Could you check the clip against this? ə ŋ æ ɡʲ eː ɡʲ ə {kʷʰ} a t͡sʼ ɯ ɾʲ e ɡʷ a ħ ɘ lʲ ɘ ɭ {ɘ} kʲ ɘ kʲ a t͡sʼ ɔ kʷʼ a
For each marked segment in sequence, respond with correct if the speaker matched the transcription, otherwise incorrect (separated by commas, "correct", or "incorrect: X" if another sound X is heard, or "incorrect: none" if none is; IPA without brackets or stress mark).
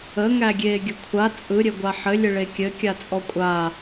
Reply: correct, incorrect: e